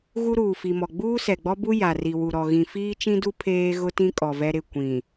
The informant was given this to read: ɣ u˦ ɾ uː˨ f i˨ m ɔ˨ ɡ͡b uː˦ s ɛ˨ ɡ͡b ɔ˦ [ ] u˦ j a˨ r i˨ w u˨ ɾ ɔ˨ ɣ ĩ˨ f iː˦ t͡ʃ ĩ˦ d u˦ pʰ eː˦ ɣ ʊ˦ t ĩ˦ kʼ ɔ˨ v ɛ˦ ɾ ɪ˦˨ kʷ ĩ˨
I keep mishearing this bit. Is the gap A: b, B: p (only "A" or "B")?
A